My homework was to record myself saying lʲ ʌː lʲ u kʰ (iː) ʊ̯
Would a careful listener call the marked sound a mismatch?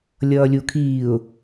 no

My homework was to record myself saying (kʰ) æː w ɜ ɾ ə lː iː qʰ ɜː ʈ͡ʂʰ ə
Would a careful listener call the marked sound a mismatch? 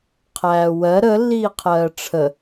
yes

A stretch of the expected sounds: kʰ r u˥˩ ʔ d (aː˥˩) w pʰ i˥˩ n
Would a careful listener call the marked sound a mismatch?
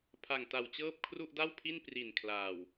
yes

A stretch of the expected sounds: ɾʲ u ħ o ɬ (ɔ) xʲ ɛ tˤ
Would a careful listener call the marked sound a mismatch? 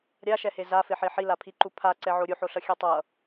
yes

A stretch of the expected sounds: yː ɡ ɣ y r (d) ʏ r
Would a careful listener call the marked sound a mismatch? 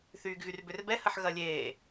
yes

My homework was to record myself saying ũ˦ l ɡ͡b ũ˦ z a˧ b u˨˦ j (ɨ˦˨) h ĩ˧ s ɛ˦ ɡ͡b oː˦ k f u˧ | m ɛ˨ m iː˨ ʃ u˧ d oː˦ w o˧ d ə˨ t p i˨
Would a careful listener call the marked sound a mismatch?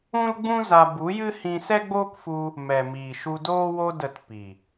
yes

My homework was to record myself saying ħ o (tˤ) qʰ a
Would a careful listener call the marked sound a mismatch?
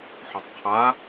no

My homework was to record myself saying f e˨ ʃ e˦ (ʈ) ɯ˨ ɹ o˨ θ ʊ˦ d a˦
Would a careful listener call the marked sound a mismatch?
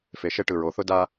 no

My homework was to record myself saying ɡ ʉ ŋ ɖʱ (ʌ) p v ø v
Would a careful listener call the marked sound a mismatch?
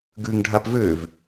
yes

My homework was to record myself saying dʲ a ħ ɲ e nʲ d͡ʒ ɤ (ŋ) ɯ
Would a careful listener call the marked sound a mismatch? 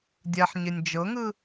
no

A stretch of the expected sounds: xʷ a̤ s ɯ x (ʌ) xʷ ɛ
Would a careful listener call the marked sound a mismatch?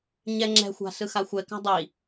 yes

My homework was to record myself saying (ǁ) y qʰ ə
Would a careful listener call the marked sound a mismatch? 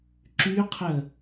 no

